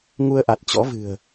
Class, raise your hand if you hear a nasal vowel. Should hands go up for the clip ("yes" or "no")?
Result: no